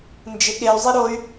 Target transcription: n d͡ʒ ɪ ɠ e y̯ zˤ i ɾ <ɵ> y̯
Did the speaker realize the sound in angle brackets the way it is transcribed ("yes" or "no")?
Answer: no